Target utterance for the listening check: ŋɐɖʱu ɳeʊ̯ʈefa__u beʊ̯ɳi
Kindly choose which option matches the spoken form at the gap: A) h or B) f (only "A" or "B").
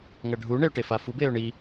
B